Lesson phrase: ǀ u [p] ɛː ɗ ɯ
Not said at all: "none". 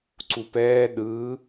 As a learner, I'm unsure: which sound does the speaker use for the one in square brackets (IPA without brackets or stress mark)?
p